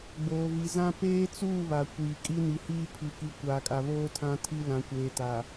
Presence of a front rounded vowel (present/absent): absent